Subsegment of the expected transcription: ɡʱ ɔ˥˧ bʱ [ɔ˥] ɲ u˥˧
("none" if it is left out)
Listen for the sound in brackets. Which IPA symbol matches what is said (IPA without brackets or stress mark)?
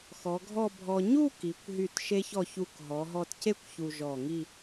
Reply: ɔ˧